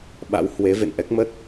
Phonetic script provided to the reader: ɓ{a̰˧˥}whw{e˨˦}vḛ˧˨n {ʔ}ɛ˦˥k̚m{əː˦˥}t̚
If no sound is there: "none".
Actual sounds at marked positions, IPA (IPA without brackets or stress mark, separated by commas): a̰˧˥, e˨˦, ʔ, ə˦˥